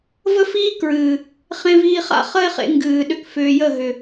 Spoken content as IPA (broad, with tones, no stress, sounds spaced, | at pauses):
v ə˦ f iː˦ k ɹ ɨː˨ | χ ẽ˧ v iː˧ χ a̰˦ χ ə˦ e̯ χ ḛ˧ ŋ ɡ ɨː˨ ɗ ʏ˧ k f ʏː˨ j ə˦˨ ɦ ʏ˨